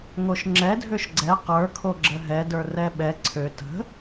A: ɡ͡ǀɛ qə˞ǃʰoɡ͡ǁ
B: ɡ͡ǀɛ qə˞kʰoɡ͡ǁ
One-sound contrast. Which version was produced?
B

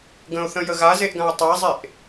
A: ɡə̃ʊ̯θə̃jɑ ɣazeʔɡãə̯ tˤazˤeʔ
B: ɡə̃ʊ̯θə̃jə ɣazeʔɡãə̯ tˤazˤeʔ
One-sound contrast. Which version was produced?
B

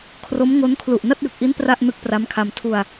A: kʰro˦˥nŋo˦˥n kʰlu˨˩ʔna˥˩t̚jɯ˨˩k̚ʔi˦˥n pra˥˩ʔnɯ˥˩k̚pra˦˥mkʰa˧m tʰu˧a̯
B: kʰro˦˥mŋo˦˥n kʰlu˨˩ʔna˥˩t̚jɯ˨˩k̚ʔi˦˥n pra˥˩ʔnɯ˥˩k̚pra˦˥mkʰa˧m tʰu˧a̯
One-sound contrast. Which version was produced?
B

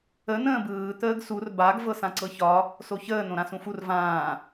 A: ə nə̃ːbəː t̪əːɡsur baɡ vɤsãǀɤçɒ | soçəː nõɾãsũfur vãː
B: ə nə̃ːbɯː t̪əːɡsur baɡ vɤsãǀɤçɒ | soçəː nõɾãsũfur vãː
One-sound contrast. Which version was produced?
B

